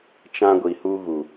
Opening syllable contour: high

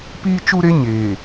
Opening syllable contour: high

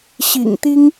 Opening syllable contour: low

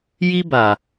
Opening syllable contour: high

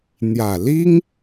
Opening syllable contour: low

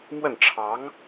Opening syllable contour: falling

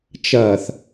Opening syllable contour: low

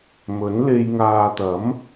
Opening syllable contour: rising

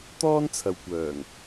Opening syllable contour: high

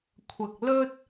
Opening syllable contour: low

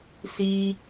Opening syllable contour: high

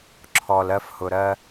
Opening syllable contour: low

